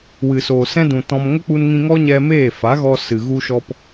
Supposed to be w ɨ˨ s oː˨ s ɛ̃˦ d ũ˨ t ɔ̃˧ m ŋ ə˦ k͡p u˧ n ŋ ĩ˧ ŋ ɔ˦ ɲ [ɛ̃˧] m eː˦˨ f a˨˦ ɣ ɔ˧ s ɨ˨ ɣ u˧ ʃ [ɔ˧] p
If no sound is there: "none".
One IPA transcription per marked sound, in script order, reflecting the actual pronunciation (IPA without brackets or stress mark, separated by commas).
ɛ˧, ɔ˧